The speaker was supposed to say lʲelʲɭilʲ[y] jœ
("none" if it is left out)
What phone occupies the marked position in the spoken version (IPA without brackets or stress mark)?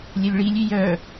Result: y